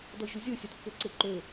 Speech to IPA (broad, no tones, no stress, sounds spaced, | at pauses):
d ɔ ʑ u zʲ o sʲ ɒ d kː ø ǀ e ǃ ø